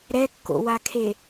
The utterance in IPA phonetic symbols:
ɾɛkːo̰wakʰe

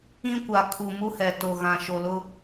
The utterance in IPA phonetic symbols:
ĩ˦kʷa˨ kʰu˨mu˦hɛ˨ to˨ɣã˨ ʃo˨lʊ˦

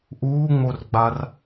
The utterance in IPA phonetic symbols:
ʔuːŋ͡morɡ͡bar

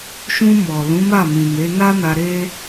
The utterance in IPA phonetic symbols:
ʃũ˧mɔ˨ lũ˨˦ma˦˨mĩ˨me˨˦ na˦na˧ ɾe˦

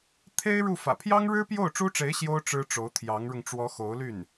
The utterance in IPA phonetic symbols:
t̪ʰe˥ɪ̯ ɻu˥˩fä̰˨˩ pʰjɑ˥ŋɻɻ̩˥ pjo˥˩ʊ̯ʈ͡ʂu˥ʈ͡ʂe˧˥ɪ̯ ɕjo˥ʊ̯ ʈ͡ʂɻ̩˥ʈ͡ʂo˧˥ʊ̯ t̪ʰjɑ˧˥ŋɻʊ˧ŋ ʈ͡ʂwɔ˧˥xo˧˥ʊ̯ly˥˩n

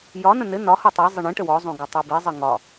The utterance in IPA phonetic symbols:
jɒnə̃ nɘ nɒho tˤi zˤɘɳĩʈə wɔzˤõ ɡɒtˤobizˤə ŋɒ

